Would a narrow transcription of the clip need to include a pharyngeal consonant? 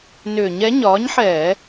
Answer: yes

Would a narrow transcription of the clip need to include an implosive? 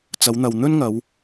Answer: no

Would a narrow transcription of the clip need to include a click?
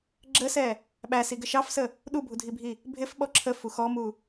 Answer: yes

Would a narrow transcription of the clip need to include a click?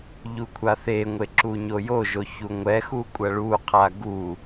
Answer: yes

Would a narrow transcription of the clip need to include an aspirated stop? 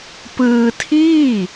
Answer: yes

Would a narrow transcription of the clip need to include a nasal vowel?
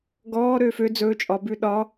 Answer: no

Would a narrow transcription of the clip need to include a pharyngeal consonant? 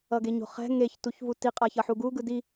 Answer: yes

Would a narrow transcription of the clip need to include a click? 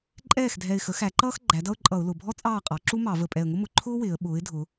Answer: yes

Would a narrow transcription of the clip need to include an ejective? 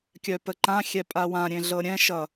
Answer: yes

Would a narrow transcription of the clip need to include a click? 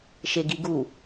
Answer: no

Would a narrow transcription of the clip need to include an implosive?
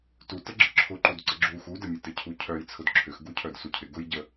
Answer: no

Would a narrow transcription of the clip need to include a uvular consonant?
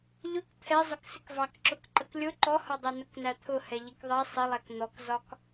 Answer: no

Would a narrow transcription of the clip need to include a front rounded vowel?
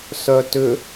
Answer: yes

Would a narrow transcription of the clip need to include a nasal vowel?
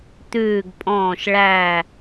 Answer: yes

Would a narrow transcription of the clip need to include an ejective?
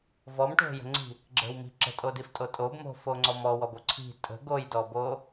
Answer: yes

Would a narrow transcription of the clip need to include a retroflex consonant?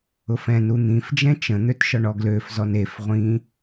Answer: yes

